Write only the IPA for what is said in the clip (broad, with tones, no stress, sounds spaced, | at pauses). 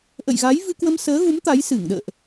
ʔ ə̰˧˨ j ɣ a˨˦ j v ɨ˧ k w ə˧ m s əː˨˦ ɣ u˨˦ m t̪ a˨˦ j s ɨ˧˩ ŋ ɗ ə̰ː˧˨ ʔ